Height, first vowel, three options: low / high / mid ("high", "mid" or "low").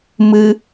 high